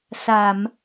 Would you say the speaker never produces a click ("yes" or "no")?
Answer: yes